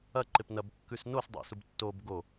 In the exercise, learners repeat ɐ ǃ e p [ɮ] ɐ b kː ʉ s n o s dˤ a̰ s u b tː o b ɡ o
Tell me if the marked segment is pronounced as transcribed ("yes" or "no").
no